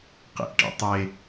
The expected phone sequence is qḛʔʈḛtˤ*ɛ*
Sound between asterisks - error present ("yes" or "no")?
yes